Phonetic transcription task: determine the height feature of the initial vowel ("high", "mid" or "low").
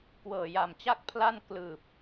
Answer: mid